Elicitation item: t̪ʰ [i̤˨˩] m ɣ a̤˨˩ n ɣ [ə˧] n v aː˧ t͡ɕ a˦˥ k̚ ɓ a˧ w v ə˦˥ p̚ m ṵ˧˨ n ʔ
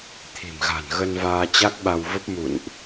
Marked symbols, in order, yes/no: yes, yes

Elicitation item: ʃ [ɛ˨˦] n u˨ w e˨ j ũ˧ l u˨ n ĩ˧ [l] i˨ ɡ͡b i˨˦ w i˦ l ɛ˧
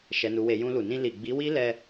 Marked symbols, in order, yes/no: no, yes

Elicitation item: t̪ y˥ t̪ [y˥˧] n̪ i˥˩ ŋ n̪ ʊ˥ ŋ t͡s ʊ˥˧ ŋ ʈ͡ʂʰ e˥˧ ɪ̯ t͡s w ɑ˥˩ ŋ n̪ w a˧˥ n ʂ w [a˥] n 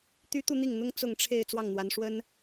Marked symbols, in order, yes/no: no, no

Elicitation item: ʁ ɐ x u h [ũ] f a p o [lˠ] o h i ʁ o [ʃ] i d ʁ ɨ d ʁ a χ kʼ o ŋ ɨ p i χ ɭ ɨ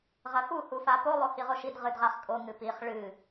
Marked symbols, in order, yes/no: no, yes, yes

